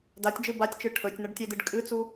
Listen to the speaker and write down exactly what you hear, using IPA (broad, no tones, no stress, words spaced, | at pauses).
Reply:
datʲd͡ʒɨ batʲt͡ʃɨ ʈʰɵtʲnɐɖtʲedɨɖ kʼɨt͡su